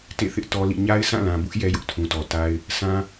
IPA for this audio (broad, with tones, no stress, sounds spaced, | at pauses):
t ḛ˦˨ θ ɪ˦ ʔ t ɔ˦ l ḭ˦˨ ɲ a˦ ɪ̯ sʰ ã˦˨ l ã˨ b ʊ˦ ʔ j ɛ˦ j ʊ˦ ʔ tʰ ũ˨ t ɔ˨ t a˦ ɪ̯ | sʰ ã˦